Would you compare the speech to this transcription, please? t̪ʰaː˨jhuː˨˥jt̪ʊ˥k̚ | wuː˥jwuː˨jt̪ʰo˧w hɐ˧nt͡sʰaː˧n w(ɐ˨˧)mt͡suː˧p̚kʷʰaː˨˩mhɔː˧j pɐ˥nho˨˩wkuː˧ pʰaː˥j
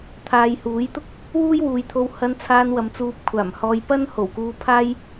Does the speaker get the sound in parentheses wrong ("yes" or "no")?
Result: no